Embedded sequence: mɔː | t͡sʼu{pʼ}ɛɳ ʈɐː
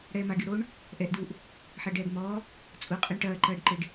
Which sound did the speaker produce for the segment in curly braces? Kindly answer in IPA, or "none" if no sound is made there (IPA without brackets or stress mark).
qʼ